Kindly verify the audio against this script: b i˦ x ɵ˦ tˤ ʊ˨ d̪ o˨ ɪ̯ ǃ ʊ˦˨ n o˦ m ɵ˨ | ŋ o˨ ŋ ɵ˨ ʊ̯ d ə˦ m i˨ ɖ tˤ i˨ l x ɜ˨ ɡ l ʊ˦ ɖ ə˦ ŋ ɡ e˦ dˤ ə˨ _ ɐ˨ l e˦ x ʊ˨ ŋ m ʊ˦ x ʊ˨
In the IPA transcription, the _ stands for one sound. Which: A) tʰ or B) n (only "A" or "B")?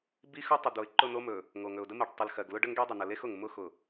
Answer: B